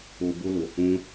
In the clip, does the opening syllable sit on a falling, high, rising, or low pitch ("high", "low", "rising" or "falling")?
low